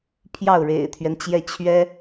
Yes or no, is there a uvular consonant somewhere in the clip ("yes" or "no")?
no